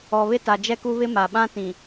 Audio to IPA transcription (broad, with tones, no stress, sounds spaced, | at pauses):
ɔ˨ β ɪ˦ t a˨ d͡ʒ ɛ˦ k u˦ β ɪ˦ m a˨ ɓ ã˦ t ĩ˨